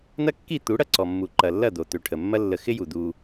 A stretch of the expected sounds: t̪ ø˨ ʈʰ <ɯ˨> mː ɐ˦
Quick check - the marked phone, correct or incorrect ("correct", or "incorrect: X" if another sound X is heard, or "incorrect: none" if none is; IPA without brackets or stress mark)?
incorrect: ə˨